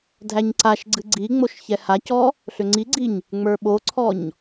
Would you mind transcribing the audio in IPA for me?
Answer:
dʱ æ ɲ ǀ a ʃ ɡ͡ǀ ɨ ɡ͡ǀ i ŋ͡m o ʃ ç ɛ h a c ɔ | ɬ ʏ ŋ͡ǀ i ɡ͡ǀ i ɲ | ŋ͡m ə˞ ɓ o ǀʰ ɔ ɲ

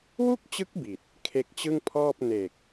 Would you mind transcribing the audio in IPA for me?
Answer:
w u˥˩ k̚ t͡ɕ ɯ˦˥ k̚ b i˨˩ t̚ | kʰ e˦˥ k̚ t͡ɕ ɯ˥˩ ŋ pʰ ɔː˥˩ p̚ n e˨˩ k̚

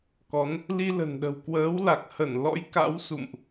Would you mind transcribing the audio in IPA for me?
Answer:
k ɔ˨˦ n | l i˧ l ə̤˨˩ n ɗ ə̤˨˩ w k w əː˨˦ w l a˨˩ k̚ h ə˧˩ n l ɔ̰˧˥ j k a̰˧˥ w s ṵ˧˨ m ʔ

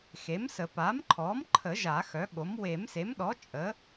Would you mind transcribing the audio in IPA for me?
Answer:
x e˩˥ m s ə˨˩˦ p a˩˥ m ǃʰ ɔ˩˥ m ǃʰ ə˨˩˦ ʒ a˨˩˦ x œ˩˥ ɠ o˩˥ m w e˨˩˦ m s e˩˥ m ɗ ɔ˩˥ t͡ʃʼ ə˩˥

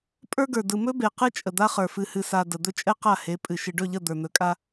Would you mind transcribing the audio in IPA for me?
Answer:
pʼ ə˞˦ ɡ ə˞˨ d ɯ˨ m ɵ˦ b e˨ q ɨ˦ t͡ʃʼ ə˨ d̪ a˦ χ ə˞˨ f ɨ˨ h ɨ˨ s a˨ d ə˨ d̪ ɵ˦ t͡ʃʼ ɛ˦ q a˦˨ h e˨˦ pʼ ɨ˨ ʃ ɨ˨ ɖ ɵ˦˨ ʎ ə˦˨ d̪ ə˞˨ n̪ ɵ˨ kʼ a˦

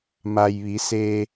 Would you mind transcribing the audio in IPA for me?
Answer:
m a˩ j ʋ i˩˧ s eː˧

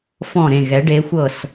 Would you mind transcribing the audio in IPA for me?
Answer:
f ɔ̃˧˩ ɾ ẽ˧˩ ɣ ɛ˩˧ ɖ e˩˧ xʷ ɤ˧˩ s

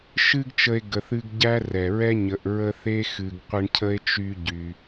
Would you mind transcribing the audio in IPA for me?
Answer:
ʃ ɨ˦ ɡ t͡ʃ ə˦ e̯ ɡ ə˨ θ ɨ˦ ɡ ɟ æ˥ r ɛ˩ ɹ ɛ˥ ɲ ə˨ ʔ ɹ ə˦ θ e˥ x ɨ˨ ɡ qʷ ə˦ ɳ cʰ ə˥ e̯ t͡ʃ y˦ ɟ y˩

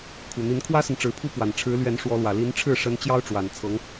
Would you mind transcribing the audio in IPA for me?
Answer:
kʰ u˨˩ n̪ i˧˥ n kʰ w ä˥ s ə˨ n ʈ͡ʂ ɻ̩˧˥ pʰ u˥ p w a˨˩ n ʈ͡ʂʰ ɻ̩˧˥ l ɥ ɛ˧˥ n ʂ w ɔ˧˥ l w ä˨˩ l i˧˥ n ʈ͡ʂʰ ɻ̩˥˩ ʂ ə˧˥ n t͡ɕ j ɑ˥ ʊ̯ ʈ͡ʂ w a˨˩ n t͡sʰ ɤ˧˥ ŋ

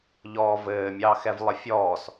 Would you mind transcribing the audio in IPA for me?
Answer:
ʎ ɔː v ɘː mʲ ɑː x ɛ v lˠ ə fʲ ɔː s

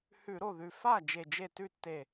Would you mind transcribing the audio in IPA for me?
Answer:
h ʉ˧˩˧ ɾ o˥˩ ð ʉ˧˩ f a˥˩ d͡ʒ e˧˩ d͡ʒ e˥˩ t ʉ˥˩ tː e˧˩

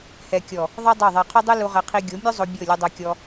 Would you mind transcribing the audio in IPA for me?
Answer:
h ɛ˨ kʲ ɔ˨ | ðˤ ɤ˦ dˤ o˦˨ ðˤ ɛ˧ qʰ o˦ dˤ ɯ˦ l u˧ ʁ ɛ˧ qʰ i˧ ɡʲ o˨˦ mʲ u˦ zˤ o˧ bʲ ɤ˦˨ lʲ ɯ˧ dˤ ɤ˧ kʲ ɔ˧

